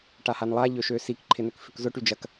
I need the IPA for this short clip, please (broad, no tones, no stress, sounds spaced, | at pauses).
ʈ a h a n lˠ a ʎ ø ʃ ø s i k ǃʰ ɪ n ʏ k f ʏ k z ʊ ʈ y d͡ʒ ɐ k